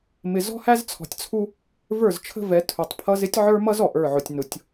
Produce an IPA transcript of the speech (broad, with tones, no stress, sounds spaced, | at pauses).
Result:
m ɪ˨ z ɔ̤˦ h æ˦ z t͡sʰ ɔ̤˨ tʲ t͡sʰ u˦ | v ə˞˦˨ z t͡ʃʰ ə̤˦ v ɛ˨˦ tʰ u˨ tˤ pʰ ʌ˦ z ɪ˦ tʲ ʕ ə˞˦ m ʌ˦ z ɔ˨ ʔ ə˞˦˨ ʕ ʊ˨ tʲ n ʊ˨ tʲ